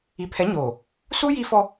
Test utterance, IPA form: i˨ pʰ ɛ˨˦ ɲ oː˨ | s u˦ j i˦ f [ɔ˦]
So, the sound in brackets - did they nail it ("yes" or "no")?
yes